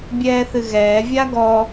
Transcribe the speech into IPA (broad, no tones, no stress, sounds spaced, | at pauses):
bʲ ɛː θ ɨ ɣ ɛː vʲ a ɡ ɔ